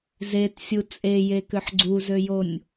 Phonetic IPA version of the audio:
z e t sʲ u t͡sʼ e j e k ʏ ħ ɡ͡ǀ u z ø j o nʲ

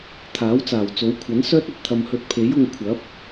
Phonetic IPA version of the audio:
t̪ʰ aː˨˥ w t͡s aː˨˩ w t͡s o˨˥ w kʷʰ ɐ˨˥ n s œː˥ t̚ ɐ˨ t̚ t̪ʰ ɐ˧ m h ɵ˧ t̚ pʰ e˨˥ j ʊ˧ ŋ kʷʰ ɐ˨˥ p̚

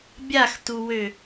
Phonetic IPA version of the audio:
bʲ a x t u w ø

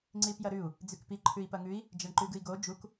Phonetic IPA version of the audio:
ŋ͡ǀ i p j ɐ ɾ ʉ u̯ | d͡z ʉ k p i ǃʰ ʉ i̯ p ɐ ŋ ʉ i̯ | d͡ʒ ɐ ɳ ǃ ʉ ɡ ɨ i̯ ɡ o d͡ʒ u k

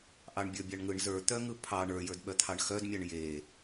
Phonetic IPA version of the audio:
ʔ ɑ ɳ bʲ ə˞ bʲ ɑ ɳ ŋ ɯ ɳ z ə˞ t̪ œ ŋ ɯ pʰ ɑ ɳ ə˞ j ə˞ d ɓ œ t̪ʰ ɑ ɳ x œ d mʲ ɑ ɳ j e

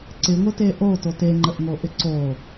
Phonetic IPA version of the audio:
ǀ ɪ ŋʷ ɪ t e ʔ o t o t e ŋ͡ǃ ə ʔ ŋ o ʔ ɪ ǀ o

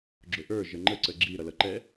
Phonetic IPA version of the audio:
ɡ͡ǁ ʊ ʔ ə˞ ʒ ə ŋ͡ǃ ə ǀ ə ɡ͡ǁ i ɾ ʌ l ʌ ǃ ɛ

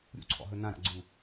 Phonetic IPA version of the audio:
ɾʲ ṵ ǀʰ ɔ̰ ɦ ɵ n ã ɾ a̰ ɡ͡ǀ u

